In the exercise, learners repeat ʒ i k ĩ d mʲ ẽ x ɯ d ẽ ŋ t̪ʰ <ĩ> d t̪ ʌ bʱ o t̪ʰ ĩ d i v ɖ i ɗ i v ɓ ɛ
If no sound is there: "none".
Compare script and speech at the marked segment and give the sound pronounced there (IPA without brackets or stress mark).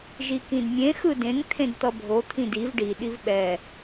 ẽ